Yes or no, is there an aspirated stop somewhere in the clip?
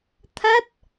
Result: yes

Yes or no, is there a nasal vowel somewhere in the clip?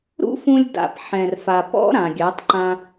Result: yes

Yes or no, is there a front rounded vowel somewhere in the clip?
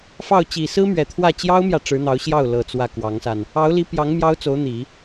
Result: no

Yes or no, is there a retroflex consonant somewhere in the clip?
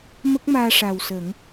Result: yes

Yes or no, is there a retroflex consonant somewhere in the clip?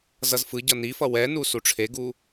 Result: yes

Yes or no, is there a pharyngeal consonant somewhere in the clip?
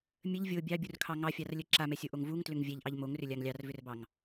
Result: no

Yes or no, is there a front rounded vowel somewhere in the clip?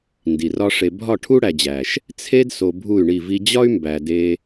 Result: yes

